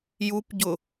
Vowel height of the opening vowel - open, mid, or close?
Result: close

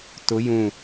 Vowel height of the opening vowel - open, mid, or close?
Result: close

